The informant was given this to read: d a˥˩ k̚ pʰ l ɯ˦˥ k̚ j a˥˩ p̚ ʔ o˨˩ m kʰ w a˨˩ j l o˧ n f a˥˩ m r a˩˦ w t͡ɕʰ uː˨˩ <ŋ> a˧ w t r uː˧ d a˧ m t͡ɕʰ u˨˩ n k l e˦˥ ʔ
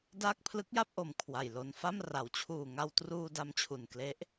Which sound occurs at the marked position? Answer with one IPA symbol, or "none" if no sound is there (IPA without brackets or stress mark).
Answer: ŋ